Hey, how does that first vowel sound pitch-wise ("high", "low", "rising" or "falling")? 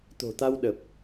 low